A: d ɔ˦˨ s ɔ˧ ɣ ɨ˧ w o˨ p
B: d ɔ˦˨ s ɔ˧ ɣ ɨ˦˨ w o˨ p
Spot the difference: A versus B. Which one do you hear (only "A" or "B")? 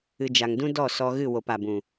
B